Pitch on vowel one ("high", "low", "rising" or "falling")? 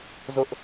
high